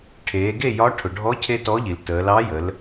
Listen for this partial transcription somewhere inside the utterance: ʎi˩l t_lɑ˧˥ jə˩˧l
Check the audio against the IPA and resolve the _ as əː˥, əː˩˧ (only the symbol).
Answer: əː˩˧